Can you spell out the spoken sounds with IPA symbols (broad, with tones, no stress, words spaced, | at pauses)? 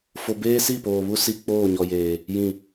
fo˦ beː˦si˦˨poː˨βu˦ si˦ k͡poː˦˨ɲɔ˨jeː˨ | jĩ˦˨